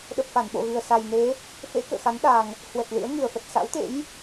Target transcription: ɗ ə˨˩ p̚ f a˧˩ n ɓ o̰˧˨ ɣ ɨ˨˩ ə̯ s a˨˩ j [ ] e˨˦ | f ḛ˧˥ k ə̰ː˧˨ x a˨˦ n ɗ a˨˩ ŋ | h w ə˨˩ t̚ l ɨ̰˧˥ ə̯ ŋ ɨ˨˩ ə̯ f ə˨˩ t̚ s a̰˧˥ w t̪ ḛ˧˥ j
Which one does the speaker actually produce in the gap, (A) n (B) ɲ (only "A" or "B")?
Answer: A